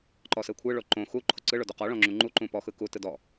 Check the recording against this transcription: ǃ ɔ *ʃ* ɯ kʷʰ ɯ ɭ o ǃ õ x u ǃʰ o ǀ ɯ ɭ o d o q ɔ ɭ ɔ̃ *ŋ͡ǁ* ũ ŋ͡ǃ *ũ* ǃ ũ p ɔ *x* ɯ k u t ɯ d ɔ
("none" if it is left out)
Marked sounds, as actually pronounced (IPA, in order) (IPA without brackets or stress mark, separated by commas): s, ŋ͡ǁ, u, x